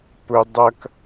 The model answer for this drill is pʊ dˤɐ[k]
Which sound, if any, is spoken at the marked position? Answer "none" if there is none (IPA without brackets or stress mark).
k